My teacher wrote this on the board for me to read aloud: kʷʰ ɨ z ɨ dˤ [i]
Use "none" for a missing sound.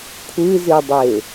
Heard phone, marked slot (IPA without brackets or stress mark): e